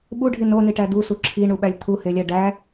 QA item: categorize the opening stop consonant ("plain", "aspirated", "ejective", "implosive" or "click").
implosive